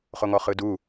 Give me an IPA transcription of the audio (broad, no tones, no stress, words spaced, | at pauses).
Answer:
χoŋɔχɯdu